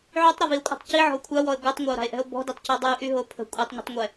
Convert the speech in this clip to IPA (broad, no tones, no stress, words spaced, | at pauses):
ʕytˤɾɔvio̯kʷʼa̤tˤ ciʕɔ̤o̯ kʷʰawɔe̯ ɡʷœtˤŋʷao̯ɾa̤e̯ʔɛ̤o̯ bɔ̤ditˤcɛ dˤyʔyɦo pʰə̤ kʷʼɛtˤɲə̤tˤŋʷɛ